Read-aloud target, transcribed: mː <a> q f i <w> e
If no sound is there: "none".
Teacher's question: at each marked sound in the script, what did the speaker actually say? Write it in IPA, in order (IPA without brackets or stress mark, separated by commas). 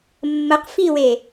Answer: ə, w